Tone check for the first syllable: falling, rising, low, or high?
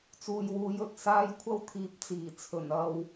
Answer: low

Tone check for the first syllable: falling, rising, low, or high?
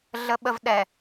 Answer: low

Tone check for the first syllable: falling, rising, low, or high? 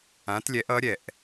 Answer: rising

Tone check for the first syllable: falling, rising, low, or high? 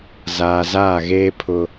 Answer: low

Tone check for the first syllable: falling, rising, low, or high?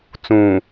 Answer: low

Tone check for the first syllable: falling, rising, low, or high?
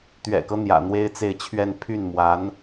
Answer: low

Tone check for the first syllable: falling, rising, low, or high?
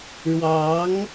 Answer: rising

